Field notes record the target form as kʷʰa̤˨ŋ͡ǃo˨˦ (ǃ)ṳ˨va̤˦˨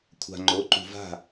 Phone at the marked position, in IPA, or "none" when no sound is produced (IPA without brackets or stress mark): ǃ